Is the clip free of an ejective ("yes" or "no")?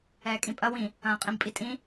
no